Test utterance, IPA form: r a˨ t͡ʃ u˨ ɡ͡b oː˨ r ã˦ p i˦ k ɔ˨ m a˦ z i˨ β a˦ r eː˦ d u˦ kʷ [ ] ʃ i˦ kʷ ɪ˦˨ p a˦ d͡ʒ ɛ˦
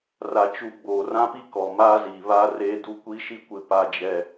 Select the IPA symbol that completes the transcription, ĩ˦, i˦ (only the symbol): i˦